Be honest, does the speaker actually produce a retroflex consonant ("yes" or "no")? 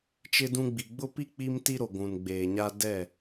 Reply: no